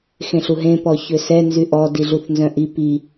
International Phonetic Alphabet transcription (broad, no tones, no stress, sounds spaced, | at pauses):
x ẽ ɬ u ɦ ẽ p ɔ ç ø s ɛ n z y ʔ ɔ d i ɮ u θ n z œ̃ ʔ i p i